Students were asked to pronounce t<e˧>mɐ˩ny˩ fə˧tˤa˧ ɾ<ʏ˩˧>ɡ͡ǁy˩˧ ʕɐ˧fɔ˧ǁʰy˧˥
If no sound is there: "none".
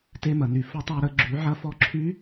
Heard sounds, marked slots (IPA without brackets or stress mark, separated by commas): e˧, ə˩˧